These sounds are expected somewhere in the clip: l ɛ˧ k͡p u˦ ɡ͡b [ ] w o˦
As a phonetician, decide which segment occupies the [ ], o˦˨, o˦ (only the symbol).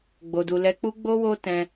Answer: o˦